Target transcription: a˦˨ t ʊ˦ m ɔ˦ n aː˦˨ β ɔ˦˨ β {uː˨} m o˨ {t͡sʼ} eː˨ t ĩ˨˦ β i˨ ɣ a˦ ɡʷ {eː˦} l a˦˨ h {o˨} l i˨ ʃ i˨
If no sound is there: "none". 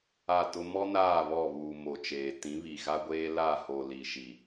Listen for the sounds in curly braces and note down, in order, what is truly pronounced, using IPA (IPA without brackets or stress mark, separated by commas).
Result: uː˨, t͡ʃ, eː˦, o˨